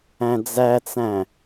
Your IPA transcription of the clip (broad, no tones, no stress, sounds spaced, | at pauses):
æ̃ d͡z æ t͡s æ̃